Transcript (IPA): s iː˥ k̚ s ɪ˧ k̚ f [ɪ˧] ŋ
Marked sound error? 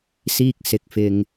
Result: no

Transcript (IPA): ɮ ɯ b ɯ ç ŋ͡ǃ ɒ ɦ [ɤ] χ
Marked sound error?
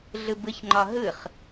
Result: yes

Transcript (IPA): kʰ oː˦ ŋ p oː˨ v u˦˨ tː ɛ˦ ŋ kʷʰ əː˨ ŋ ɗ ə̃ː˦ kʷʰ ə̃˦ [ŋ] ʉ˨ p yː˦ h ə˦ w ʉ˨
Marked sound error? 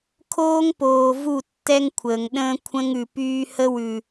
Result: no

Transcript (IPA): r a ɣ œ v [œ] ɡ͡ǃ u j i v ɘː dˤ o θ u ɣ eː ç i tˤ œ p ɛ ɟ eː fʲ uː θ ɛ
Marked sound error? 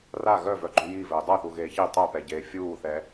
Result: no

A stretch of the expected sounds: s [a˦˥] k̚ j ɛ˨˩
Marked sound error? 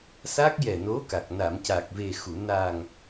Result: no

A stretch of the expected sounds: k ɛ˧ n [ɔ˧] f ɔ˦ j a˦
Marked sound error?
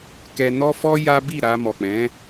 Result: yes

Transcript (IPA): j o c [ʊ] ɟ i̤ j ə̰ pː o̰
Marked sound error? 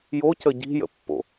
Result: yes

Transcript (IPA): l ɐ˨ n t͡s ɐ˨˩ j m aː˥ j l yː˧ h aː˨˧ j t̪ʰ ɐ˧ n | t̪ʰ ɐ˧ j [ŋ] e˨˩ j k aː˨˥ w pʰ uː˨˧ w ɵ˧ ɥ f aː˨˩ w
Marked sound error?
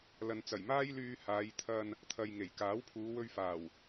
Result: no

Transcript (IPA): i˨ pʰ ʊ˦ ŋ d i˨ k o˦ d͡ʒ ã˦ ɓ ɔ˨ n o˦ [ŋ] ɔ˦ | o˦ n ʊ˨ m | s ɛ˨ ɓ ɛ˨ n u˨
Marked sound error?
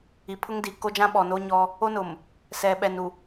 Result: yes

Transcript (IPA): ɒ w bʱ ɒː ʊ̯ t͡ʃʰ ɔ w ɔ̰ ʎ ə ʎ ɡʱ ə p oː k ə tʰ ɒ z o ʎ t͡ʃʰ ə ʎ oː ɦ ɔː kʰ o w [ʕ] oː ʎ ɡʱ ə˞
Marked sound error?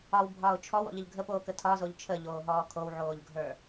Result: no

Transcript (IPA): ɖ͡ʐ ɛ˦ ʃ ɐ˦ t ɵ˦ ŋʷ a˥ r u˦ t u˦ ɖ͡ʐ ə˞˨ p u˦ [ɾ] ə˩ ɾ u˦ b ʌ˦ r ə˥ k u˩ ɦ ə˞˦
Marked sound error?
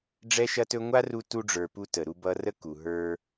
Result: yes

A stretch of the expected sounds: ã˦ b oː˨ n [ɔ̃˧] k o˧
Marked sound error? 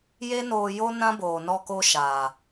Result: yes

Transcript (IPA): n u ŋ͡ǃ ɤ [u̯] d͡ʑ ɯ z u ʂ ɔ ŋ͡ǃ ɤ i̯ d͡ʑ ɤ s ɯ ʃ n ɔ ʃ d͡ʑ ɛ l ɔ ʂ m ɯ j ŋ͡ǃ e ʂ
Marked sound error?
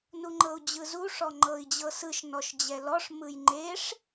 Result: no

